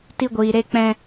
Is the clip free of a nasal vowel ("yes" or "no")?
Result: no